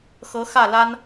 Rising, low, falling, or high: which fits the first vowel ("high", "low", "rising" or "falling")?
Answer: rising